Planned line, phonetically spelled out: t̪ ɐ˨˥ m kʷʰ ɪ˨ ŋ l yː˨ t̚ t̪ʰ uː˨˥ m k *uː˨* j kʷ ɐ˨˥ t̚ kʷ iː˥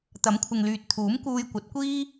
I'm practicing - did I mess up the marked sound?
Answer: yes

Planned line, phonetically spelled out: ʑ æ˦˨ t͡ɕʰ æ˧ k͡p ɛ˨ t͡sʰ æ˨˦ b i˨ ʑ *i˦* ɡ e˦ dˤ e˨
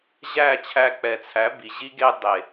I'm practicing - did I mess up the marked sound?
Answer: no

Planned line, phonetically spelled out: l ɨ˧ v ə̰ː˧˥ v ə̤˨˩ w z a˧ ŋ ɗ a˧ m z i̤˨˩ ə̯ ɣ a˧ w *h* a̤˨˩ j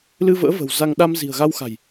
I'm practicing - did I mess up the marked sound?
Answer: yes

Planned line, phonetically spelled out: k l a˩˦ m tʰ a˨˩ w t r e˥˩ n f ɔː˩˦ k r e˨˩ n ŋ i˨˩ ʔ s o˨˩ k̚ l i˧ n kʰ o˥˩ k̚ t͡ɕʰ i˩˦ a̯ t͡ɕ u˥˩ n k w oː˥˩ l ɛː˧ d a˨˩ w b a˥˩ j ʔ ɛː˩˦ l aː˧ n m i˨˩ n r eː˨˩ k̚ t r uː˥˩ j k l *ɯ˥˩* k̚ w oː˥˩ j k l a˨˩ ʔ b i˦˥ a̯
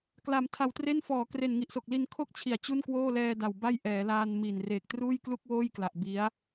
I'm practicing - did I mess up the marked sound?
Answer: yes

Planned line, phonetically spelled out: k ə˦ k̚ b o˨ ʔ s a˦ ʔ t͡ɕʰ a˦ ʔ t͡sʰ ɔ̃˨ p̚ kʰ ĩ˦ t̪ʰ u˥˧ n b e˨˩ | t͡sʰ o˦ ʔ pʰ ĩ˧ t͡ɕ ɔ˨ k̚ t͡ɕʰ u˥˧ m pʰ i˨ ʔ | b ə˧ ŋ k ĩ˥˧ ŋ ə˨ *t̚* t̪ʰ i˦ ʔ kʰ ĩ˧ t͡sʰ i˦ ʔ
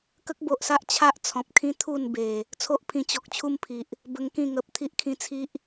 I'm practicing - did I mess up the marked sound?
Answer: yes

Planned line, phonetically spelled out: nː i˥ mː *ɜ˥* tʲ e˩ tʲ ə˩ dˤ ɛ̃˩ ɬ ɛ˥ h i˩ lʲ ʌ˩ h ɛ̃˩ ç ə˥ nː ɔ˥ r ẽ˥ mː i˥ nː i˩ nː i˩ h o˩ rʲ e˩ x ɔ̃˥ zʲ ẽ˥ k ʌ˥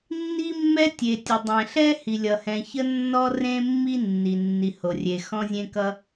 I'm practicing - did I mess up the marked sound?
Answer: yes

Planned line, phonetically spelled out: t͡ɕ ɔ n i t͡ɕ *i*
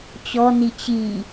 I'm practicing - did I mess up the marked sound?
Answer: no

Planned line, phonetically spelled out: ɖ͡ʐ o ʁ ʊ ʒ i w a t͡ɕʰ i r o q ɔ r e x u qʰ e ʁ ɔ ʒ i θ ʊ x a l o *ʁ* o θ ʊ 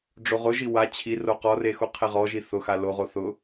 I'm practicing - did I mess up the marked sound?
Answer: no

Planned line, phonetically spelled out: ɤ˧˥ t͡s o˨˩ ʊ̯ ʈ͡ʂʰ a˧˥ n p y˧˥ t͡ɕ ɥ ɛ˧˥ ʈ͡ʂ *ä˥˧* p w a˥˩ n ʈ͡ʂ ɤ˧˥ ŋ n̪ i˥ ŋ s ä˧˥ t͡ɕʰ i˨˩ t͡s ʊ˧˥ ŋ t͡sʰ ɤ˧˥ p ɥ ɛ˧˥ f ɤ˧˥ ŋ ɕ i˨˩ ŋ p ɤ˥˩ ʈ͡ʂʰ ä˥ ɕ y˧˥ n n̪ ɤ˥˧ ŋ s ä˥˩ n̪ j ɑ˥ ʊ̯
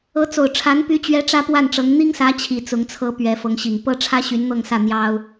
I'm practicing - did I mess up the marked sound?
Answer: yes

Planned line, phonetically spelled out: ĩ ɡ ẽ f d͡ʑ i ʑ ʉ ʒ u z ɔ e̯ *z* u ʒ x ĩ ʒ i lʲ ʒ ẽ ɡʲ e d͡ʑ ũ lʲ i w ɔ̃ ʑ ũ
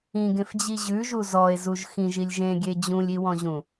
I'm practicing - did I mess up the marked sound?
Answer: no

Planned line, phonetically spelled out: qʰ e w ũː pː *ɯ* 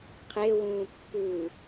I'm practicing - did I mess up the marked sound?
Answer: no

